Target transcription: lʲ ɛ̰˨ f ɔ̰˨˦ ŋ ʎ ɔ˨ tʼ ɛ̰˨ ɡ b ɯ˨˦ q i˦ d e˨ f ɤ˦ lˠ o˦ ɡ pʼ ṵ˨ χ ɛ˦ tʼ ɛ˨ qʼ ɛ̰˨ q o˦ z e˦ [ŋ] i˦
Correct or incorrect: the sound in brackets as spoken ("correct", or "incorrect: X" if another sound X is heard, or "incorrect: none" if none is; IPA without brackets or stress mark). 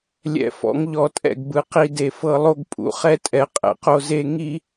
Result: correct